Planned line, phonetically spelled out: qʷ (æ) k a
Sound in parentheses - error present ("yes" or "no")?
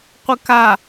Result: yes